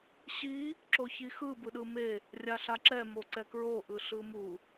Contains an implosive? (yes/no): yes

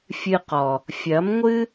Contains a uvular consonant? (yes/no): yes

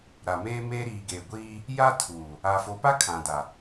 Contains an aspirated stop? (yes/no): yes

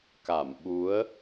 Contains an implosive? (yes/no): yes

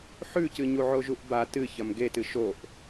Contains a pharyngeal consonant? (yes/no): yes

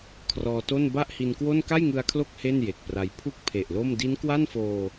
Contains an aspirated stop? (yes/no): yes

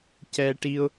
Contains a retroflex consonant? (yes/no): yes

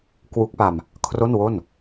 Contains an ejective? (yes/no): no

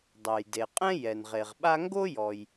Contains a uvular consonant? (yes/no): yes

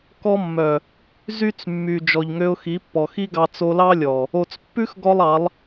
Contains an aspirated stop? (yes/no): no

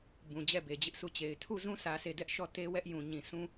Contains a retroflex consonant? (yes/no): no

